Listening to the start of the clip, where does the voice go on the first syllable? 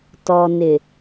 low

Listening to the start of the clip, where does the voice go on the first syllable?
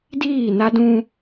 falling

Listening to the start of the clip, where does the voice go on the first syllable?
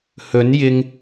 rising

